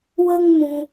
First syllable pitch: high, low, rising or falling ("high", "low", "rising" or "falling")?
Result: high